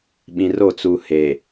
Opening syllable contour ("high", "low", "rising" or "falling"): low